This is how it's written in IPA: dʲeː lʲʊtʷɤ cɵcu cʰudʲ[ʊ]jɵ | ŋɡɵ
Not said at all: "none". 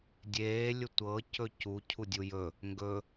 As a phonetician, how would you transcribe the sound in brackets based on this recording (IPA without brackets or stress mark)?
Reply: u